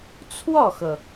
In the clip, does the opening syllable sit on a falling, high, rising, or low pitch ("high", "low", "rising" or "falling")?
falling